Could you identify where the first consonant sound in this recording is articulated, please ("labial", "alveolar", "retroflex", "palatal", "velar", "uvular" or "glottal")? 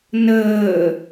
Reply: alveolar